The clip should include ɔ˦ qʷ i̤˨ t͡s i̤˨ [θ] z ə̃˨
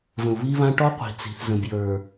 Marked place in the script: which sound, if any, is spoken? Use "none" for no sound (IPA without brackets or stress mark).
θ